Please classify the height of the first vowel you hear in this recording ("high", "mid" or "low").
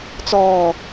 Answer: mid